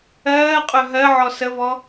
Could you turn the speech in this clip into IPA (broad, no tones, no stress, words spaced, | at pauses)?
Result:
ɜːqʼœ ɦɜʕɔ səvɔ